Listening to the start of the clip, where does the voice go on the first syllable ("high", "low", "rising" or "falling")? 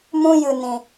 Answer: high